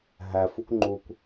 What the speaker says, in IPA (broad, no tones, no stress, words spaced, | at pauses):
ɦæf ukʷŋ͡ǃukʷ